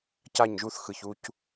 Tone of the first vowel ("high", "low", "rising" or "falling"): falling